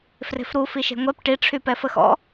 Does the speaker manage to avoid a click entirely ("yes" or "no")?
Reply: yes